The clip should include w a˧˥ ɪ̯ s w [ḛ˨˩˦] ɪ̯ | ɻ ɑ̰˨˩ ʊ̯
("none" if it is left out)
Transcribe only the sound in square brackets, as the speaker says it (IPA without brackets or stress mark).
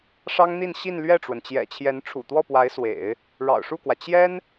ḛ˨˩˦